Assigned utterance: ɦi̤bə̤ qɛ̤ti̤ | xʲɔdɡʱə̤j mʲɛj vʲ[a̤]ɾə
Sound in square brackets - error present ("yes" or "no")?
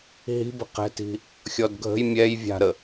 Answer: no